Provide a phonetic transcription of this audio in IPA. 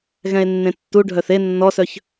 ɣ ɛ̃ e̯ nː ẽ tː u ɖʱ œ θ e nː ɔ s œ ç

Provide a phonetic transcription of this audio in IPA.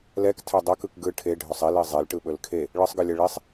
l ɛ k tʰ ɛ dˤ ɛ k ɯ k ɡ ɯ ʈʰ e ɖʱ ɵ sˤ i l i zˤ e l ʈ ɯ ɓ ɵ l kʰ e | ɭ ɯ sˤ ɡ ɯ lʲ ɛ ɭ i sˤ

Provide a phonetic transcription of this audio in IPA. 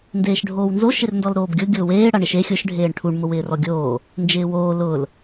n d eː ʃ ɖʱ oː w n z o ʃ ɪ r n d ɔ l ɾ oː b ɡʲ ʊ ɡʲ ʊː w eː ɽ a ɳ ɪ ʃ e xʲ ʊ ʃ ɖʱ eː ɳ ʈʰ u ɳ m ʊ w ɪː r ɔ ɡʲ oː | n d͡ʒ ɪː w oː l ʊ l

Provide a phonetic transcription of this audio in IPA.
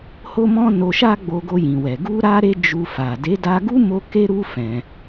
h o˦ m ɔ̃˦ n o˧ ʃ a˦ ɡ͡b o˧ ɡ o˧ j ĩ˨ w ɛ˨ ɡ u˧ ɾ a˦ ɾ e˦ d͡ʒ u˧ f a˨ d e˨˦ d a˧ ɡ u˦ m o˦ k e˦ ɾ u˦ f ɛ̃˧

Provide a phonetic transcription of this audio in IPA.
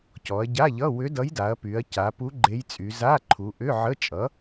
c ɔ˩˧ ɐ̯ ɟ a˧˥˧ ʎ ʌ˧˥˧ w ʏ˧˥ d ʌ˧˥ j d a˩˧ ɐ̯ p y˩˧ ɐ̯ c a˩˧ p u˧˥ ɡ͡ǃ e˧˥ j t͡sʼ y˩˧ z a˧˥˧ ǃʰ u˩˧ ʔ ʏ˧˥˧ ʕ ə˧˥˧ t͡ʃʼ ʌ˩˥

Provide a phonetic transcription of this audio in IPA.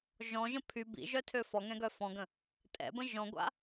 ʒ ɔ̃ ʒ ə̃ pʰ y b ḭ ʒ œ tʰ ø f ɔ ŋ ɛ̃ ɡ œ f ɔ̃ ɡ ə̃ | tʼ ɛ̰ b ə̃ ʒ ɔ̃ ɡʷ a̰

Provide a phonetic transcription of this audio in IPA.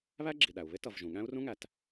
β æ˥ ɡ͡ǁ i˩ ɗ æ˩ u̯ β ɪ˥ t ʌ˩ v ʒ ũ˩ ɠ æ̃˥ u̯ r ũ˥ ŋ æ˩ t

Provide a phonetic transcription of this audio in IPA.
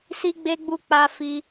s i˧ ɡ͡b e˧ ɡ͡b u˧ k͡p a˧ f i˧

